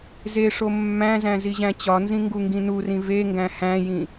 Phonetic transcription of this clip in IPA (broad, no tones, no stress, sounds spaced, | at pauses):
z e ʂ o mː æ̃ z æ̃ z i ʑ æ̃ t͡ɕ ɒ n z ĩ ŋ ɡ u ŋ ɡ ĩ n u r ĩ v e ŋ ɡ æ̃ h æ̃ j ĩ